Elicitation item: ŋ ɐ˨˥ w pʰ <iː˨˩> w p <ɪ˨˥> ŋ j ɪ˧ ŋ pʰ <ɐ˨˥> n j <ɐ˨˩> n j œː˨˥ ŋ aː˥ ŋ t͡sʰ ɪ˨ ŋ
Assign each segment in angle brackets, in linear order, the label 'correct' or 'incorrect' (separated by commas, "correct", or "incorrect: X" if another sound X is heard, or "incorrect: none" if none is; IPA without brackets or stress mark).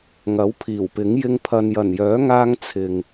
correct, correct, incorrect: ɐ˨, correct